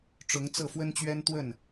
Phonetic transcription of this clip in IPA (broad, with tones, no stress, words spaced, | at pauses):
ʈ͡ʂʊ˨˦ŋ t͡sɤ˥˨fwə˦nt͡ɕɥɛ˦n t̪wə˥˨n